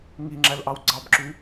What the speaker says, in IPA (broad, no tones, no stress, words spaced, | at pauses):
ŋiŋ͡ǁælʔɑw ɡ͡ǀɑbǁy